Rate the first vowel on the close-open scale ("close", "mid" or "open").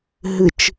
close